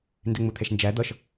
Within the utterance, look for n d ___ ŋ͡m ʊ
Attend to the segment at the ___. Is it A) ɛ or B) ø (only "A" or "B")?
A